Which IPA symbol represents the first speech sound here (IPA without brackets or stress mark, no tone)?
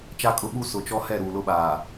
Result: t͡ʃ